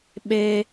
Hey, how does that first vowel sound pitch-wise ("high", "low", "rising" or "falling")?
high